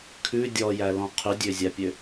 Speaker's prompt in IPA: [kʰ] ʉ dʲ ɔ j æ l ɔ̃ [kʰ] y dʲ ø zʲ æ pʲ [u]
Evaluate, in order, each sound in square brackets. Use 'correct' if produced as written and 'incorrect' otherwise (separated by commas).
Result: correct, incorrect, incorrect